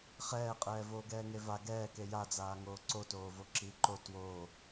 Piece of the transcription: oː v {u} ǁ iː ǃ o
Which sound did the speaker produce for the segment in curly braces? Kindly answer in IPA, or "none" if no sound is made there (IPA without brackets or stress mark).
o